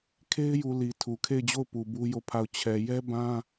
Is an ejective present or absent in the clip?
absent